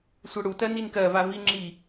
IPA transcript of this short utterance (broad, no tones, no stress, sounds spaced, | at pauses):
sʷ ɜ ɽ u t ɜ n i n k ɜ v a v i ŋ͡ǁ i